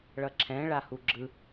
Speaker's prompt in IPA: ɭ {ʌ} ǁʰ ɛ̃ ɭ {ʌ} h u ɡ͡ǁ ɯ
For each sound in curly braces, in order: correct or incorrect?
correct, incorrect: a

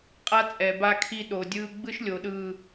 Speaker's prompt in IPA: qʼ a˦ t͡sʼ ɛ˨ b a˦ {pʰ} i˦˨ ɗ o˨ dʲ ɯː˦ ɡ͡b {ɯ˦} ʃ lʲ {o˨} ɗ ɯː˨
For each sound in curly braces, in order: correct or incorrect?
incorrect: kʰ, correct, correct

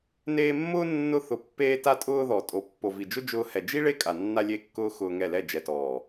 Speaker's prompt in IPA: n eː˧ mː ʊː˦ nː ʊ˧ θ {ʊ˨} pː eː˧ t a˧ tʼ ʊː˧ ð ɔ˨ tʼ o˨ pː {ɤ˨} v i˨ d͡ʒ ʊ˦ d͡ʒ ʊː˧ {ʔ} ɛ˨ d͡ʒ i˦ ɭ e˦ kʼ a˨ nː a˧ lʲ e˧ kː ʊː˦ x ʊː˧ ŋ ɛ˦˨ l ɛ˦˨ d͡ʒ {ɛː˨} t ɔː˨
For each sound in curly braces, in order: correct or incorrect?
correct, incorrect: o˨, incorrect: h, incorrect: ɛ˨

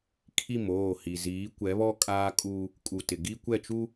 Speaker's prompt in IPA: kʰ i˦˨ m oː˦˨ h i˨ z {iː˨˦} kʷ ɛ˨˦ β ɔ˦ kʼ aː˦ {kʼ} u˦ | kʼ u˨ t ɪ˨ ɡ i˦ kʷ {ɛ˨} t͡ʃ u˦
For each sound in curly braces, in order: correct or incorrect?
correct, correct, incorrect: ɛ˦˨

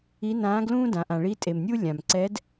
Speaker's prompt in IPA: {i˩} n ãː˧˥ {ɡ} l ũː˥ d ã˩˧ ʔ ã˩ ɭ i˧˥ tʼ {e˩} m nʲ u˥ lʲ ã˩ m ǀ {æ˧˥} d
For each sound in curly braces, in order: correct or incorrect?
incorrect: i˧˥, correct, correct, incorrect: ɛ˧˥

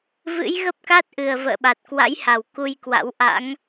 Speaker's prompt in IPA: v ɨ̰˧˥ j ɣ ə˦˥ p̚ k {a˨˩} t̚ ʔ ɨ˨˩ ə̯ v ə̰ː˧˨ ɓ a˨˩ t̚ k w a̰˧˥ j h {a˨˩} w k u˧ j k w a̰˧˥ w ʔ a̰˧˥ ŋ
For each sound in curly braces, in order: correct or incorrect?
incorrect: a˦˥, correct

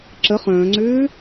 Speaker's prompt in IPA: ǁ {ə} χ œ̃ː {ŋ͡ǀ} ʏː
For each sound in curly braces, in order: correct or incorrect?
correct, correct

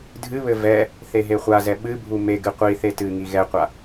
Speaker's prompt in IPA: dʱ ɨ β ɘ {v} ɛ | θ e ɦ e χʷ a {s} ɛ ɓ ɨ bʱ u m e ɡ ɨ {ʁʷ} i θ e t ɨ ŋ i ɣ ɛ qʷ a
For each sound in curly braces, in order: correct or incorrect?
correct, incorrect: z, incorrect: qʷ

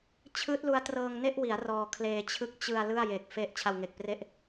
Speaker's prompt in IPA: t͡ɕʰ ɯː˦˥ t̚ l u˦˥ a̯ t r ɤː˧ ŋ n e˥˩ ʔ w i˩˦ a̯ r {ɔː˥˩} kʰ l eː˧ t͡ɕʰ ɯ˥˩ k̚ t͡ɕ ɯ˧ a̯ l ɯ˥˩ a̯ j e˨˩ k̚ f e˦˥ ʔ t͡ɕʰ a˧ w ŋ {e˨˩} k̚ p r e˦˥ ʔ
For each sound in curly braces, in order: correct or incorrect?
incorrect: ɔː˧, correct

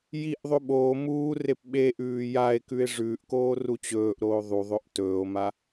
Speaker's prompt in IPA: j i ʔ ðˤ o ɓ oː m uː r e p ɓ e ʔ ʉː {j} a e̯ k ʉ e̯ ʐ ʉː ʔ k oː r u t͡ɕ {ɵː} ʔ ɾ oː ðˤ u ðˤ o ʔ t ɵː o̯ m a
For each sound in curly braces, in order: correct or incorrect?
correct, correct

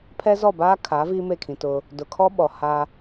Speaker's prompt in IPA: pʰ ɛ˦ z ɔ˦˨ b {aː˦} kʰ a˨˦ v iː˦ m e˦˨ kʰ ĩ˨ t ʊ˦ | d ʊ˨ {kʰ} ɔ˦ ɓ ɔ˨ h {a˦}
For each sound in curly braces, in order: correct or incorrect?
correct, correct, correct

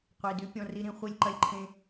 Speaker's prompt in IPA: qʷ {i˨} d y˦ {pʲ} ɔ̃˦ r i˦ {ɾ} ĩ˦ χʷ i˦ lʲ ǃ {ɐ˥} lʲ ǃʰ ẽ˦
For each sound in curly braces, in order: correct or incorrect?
correct, correct, correct, correct

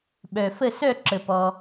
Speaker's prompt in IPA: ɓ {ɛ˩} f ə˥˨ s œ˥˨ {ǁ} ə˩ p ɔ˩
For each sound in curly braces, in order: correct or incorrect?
incorrect: œ˩, correct

